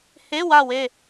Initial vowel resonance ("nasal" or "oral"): oral